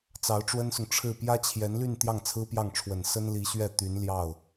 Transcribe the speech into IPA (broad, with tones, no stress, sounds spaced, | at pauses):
t͡s ɑ˧˥ ʊ̯ ʈ͡ʂ w ə˥ n s ʊ˨ ŋ ʈ͡ʂʰ ɻ̩˥˩ p j ä˥ t͡ɕʰ j ɛ˧˥ n l y˥˧ n t̪ j ɑ˥˩ ŋ t͡sʰ ɹ̩˥ p j ɑ˥˩ ŋ ʈ͡ʂʰ w ə˨˩ n s ə˥ n l i˧˥ ɕ ɥ ɛ˥˩ t̪ y˧˥ n l j ɑ˥˩ ʊ̯